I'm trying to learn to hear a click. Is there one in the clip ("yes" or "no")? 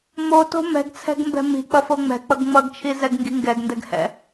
no